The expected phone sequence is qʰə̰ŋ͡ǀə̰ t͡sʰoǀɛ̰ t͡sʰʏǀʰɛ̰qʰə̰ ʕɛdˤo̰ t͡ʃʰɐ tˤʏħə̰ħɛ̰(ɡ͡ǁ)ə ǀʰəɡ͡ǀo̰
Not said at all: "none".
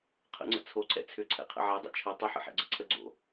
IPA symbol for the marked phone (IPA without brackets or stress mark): ɡ͡ǀ